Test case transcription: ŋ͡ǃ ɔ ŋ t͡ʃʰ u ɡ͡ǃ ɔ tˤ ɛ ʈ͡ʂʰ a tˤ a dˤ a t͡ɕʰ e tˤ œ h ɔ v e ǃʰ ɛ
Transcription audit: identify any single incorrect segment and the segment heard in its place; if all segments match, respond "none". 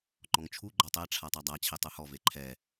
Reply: none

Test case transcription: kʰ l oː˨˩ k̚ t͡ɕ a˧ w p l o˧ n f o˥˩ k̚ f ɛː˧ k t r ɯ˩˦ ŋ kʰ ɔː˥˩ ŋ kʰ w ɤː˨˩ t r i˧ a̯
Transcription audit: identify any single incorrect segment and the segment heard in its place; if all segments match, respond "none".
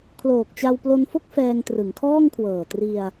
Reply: k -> ŋ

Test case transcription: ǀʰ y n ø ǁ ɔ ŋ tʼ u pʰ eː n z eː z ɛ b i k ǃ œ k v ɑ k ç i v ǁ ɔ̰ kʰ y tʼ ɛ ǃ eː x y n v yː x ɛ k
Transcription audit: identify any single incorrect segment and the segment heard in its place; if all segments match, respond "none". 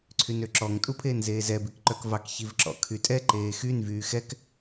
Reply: none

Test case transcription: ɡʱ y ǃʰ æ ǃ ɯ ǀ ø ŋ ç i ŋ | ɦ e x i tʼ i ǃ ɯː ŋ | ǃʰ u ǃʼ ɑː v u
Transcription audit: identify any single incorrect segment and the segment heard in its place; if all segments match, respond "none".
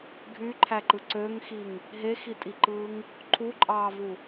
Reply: ç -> x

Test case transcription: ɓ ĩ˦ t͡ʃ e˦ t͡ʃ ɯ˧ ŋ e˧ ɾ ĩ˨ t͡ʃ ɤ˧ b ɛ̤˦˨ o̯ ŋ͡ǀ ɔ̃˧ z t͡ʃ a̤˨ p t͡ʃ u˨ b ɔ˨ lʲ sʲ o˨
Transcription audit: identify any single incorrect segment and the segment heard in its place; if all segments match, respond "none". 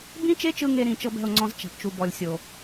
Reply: ɓ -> b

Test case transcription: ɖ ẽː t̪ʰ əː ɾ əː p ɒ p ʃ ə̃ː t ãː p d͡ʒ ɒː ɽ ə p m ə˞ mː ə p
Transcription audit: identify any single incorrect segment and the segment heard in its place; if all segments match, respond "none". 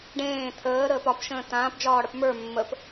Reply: none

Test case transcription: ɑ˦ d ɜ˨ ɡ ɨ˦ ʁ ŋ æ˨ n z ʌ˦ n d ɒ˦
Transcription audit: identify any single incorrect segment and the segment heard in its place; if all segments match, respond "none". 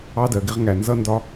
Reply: ɨ˦ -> ɪ˦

